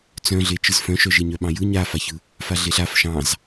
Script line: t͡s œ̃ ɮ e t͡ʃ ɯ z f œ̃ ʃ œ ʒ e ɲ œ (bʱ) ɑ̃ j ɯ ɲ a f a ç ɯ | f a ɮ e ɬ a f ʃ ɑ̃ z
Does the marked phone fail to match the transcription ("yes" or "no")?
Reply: yes